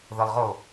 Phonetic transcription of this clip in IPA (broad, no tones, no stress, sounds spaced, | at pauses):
ð ə lˠ ʁ o